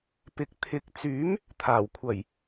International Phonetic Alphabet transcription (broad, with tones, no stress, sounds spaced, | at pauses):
p ɪ˨ k̚ t̪ʰ ɪ˨˥ k̚ t͡s yː˨˥ m | t̪ʰ aː˨˩ w kʷʰ ɐ˨˩ j